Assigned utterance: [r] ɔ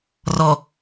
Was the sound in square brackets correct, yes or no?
yes